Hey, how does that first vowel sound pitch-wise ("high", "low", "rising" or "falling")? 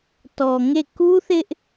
low